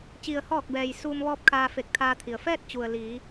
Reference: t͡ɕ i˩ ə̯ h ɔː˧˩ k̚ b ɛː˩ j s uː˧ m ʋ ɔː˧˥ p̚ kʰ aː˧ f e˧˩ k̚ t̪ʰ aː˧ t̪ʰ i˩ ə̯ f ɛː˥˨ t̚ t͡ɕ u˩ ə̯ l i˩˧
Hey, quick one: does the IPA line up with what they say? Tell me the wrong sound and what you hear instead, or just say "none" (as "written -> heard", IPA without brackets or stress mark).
none